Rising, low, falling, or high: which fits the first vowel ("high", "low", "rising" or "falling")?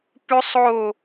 high